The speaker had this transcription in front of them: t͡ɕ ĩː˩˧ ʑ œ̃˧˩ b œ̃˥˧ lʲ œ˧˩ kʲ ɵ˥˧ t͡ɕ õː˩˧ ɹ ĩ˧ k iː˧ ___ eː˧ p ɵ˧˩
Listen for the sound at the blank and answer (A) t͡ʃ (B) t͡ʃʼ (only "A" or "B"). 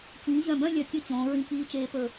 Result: A